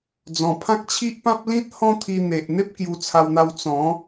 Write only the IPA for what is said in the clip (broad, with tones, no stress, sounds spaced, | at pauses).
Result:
d͡z ɔ̃˨˩ pʰ ã˦ k̚ t͡ɕʰ i˦ ʔ p ã˦ p̚ l ĩ˦ t̚ h ɔ̃˦ t̪ʰ i˧ n̪ e˨ ʔ n̪ e˦ p̚ k j u˧ t͡sʰ a˧ w n̪ a˧ w t͡s ɔ̃˨˦